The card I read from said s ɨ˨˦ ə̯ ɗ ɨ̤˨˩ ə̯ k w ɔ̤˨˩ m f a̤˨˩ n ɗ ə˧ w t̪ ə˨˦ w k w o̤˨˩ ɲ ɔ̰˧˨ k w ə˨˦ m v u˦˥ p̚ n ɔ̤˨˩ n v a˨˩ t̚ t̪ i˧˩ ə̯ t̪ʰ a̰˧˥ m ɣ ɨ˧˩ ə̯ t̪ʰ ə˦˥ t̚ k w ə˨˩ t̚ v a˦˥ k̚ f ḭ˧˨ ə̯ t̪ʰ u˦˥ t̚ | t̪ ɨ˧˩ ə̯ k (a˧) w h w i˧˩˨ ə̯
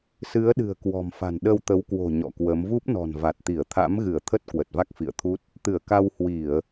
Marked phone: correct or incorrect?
correct